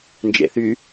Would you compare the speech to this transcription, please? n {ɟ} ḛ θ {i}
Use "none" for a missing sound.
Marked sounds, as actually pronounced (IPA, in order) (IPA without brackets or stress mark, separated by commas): d͡ʒ, y